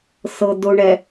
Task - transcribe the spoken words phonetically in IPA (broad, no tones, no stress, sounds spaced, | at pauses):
s ɤ d ʊ ɳ ɛ